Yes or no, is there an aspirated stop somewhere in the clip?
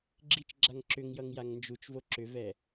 no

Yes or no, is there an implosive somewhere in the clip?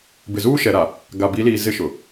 no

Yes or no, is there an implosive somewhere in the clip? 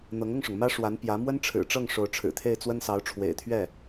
no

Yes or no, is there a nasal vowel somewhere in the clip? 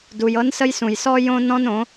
yes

